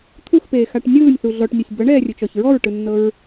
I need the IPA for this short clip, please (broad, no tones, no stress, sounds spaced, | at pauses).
t̪ʰ u x p eː x a ʈ nʲ ɯː nʲ θ u ɮ ɔ ʈ nʲ ɤ sʲ b ɤ ɳ ɛː rʲ ɯ t͡ʃ ɔ ç ɹ ɔ ɹ ʈ ɯ nː ɤ ɹ